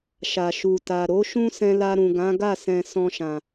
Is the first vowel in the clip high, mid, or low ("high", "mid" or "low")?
low